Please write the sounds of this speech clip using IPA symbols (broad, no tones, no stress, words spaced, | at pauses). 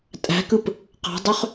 tʼæ̤kɯp | qɑ̤dˤøχ